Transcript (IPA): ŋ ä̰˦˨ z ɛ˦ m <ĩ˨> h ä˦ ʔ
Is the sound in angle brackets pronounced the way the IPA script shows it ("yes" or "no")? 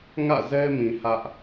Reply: yes